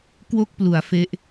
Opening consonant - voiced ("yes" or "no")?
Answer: no